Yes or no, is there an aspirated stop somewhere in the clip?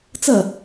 no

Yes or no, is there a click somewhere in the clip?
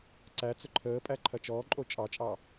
yes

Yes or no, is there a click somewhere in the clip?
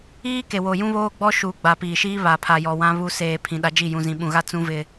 no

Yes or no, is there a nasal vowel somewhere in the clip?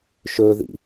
no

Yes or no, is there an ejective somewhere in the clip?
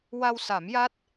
no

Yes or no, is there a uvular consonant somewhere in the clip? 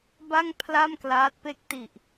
no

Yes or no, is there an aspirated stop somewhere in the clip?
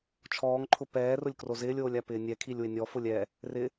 yes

